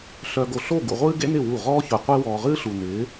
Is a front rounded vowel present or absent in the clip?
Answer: present